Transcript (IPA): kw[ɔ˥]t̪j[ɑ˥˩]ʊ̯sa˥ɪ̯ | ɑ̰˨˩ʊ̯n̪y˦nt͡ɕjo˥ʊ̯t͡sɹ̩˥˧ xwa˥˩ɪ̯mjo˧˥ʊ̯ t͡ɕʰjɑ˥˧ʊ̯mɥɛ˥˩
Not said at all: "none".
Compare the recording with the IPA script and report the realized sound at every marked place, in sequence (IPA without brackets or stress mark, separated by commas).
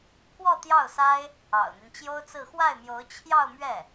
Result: ɔ˥˧, ɑ˥˩